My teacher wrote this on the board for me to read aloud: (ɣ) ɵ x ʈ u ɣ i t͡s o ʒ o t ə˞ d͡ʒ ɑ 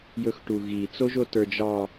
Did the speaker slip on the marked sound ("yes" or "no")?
yes